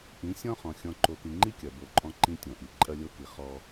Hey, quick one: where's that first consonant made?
throat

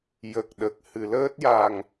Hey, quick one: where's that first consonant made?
palate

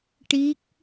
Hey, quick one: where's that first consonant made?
retroflex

